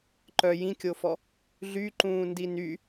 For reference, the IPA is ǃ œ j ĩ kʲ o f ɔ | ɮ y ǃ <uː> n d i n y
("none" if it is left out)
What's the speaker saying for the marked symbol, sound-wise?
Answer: ũː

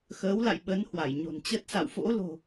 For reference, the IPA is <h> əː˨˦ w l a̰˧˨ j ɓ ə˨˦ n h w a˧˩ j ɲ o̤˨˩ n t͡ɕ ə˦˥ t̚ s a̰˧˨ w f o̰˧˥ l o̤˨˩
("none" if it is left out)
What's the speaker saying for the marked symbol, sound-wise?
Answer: x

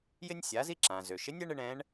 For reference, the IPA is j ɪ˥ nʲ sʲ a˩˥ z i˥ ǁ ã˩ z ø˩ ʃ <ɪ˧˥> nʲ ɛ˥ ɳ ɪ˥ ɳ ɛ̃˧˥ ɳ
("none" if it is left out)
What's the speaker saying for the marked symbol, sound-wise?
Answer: ɪ˧˥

